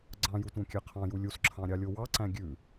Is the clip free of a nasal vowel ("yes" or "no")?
no